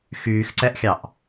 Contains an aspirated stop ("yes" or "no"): no